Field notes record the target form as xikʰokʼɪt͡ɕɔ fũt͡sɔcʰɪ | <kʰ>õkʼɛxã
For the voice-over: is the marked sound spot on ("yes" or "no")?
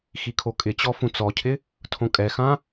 no